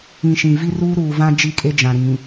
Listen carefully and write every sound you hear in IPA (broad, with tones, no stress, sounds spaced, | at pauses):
ĩ˨ ʃ ĩ˨ v i˦ r uː˦ ɾ uː˨ v ã˦ d͡ʒ i˦˨ kʼ e˦ d͡ʒ ã˨ ɾ ĩ˨